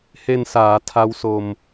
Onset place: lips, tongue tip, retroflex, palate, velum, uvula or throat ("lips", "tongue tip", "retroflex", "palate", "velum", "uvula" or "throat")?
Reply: throat